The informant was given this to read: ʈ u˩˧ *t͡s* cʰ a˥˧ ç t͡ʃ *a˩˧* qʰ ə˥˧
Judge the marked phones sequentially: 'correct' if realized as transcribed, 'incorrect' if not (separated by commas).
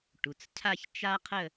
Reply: correct, incorrect